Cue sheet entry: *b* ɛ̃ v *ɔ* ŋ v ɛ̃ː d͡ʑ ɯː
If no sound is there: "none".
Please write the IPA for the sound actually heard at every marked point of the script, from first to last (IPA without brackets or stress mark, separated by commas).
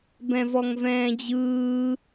b, ɔ